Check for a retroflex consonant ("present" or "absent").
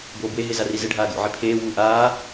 present